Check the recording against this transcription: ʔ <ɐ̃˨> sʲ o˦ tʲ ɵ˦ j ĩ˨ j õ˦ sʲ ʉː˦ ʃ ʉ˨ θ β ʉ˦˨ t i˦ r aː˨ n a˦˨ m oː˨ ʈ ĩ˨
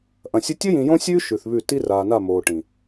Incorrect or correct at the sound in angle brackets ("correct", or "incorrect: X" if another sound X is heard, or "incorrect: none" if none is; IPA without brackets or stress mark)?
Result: correct